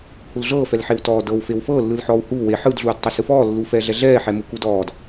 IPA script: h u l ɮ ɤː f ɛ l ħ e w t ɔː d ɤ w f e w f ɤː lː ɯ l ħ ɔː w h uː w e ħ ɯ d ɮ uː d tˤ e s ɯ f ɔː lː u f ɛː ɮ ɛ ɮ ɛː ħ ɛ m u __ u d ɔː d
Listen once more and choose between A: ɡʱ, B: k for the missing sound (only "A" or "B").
B